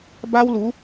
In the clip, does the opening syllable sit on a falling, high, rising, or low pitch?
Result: high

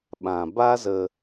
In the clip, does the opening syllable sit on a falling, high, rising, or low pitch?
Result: low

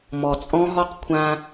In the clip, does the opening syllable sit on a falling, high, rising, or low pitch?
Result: low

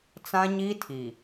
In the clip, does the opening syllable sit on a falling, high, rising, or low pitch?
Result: high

